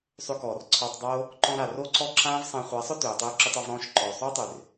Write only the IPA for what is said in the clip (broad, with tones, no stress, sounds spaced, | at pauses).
sˤ ʏ˧ k ɔː˨ r ǀʰ ɒː˧ tˤ dˤ oː˦ | ǃ ɔ̃˧ ɾ a˨ r o˦ ǀ ɔ˦ ǁ ãː˦ v sˤ ã˧ χʷ a˨˦ sˤ ʊ˦ t øː˨ tˤ øː˧ ǁ ʏ˧ tˤ ɒ˧ v ɾ ɔ̃ː˦˨ ʃ ǃ ɔː˨ sˤ oː˦ tˤ ø˨ r